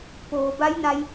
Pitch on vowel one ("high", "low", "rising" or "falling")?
low